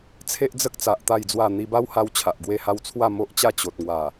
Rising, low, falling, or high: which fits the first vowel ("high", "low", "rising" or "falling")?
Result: high